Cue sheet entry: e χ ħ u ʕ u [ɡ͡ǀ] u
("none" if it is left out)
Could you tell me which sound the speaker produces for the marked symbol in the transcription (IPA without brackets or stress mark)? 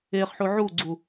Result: ɡ͡ǀ